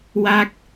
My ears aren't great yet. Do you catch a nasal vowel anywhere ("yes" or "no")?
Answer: no